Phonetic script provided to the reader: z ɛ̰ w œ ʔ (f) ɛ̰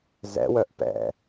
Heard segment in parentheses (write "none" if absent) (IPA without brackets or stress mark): p